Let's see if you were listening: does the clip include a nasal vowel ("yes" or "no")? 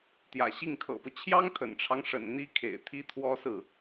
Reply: no